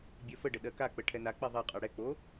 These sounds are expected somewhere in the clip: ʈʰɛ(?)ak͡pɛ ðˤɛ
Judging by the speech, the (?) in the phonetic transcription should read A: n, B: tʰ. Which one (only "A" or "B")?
A